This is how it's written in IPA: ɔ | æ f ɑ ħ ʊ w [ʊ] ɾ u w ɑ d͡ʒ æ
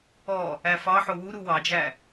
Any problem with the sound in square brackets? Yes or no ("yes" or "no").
yes